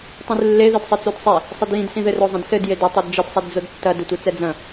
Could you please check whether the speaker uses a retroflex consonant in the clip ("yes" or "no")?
no